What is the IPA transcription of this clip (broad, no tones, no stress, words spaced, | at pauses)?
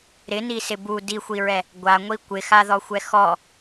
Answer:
ɾɪnisɪ bu dixʷiɹɛ | ɡʷaŋʷi kʷɪxaðɔxʷɛ xɔ